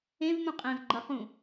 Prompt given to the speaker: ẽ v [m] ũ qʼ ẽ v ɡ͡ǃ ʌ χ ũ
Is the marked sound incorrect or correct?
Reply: correct